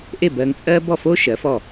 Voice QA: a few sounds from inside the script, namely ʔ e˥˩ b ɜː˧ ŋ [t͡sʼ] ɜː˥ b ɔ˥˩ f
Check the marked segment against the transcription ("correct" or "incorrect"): correct